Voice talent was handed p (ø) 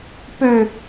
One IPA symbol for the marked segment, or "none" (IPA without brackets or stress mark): ø